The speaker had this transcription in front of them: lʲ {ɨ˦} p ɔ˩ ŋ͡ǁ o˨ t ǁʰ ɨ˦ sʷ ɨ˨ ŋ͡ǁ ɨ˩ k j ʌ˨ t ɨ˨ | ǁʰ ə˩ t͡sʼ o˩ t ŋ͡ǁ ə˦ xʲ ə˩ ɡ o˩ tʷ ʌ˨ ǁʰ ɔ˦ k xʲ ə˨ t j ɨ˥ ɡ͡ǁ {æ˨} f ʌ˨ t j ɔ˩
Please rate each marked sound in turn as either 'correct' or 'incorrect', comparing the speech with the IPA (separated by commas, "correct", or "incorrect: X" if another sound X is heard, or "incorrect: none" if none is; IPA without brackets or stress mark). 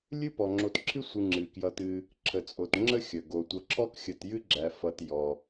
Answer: correct, correct